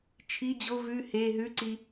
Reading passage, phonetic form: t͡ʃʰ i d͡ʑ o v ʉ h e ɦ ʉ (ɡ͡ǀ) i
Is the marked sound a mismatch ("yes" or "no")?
yes